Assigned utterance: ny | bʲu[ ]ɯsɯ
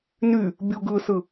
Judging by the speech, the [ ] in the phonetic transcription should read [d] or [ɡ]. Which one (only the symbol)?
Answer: ɡ